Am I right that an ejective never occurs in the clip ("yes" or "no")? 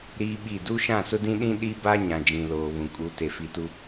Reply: no